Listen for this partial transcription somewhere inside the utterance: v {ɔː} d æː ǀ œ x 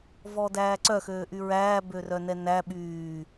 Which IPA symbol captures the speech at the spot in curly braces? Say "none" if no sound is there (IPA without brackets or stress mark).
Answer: ɔː